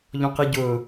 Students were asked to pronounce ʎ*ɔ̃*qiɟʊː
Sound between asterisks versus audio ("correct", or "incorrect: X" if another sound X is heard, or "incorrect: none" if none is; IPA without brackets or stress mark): correct